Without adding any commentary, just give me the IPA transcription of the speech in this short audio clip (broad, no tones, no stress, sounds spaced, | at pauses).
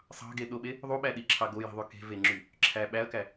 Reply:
sˤ ɑ̤ ɡ e ɗ o ɓ e | ðˤ u ɓ æ ɗ i ǁʰ ɑ ɡ o j i̤ ðˤ y k e̤ v e ŋ͡ǁ y | ǁʰ æ ɓ æ ɐ̯ k æ